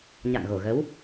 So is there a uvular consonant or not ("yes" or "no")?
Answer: no